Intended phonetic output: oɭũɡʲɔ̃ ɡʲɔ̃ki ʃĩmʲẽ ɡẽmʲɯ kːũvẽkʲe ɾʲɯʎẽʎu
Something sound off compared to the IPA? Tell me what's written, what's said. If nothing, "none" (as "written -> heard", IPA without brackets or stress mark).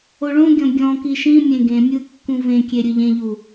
none